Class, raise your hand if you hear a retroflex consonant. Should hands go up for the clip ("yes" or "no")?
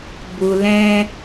no